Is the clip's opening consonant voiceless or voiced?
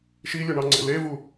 voiceless